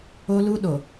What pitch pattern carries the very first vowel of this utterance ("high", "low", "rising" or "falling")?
high